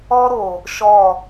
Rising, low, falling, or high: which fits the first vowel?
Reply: high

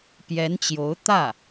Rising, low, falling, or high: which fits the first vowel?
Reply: rising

